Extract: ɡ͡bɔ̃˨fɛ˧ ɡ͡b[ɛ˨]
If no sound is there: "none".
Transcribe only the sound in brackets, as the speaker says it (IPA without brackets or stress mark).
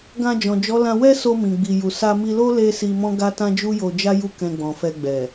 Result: ɛ˨